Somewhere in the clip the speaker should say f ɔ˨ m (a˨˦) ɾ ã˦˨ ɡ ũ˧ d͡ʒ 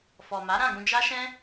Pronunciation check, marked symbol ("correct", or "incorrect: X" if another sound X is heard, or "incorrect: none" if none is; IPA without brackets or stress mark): correct